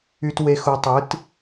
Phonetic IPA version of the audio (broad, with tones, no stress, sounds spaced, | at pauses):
y˧ t w e˧ x u˧ tˤ ɯ˨˥ t